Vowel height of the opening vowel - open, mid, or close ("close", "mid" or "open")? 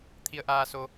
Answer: close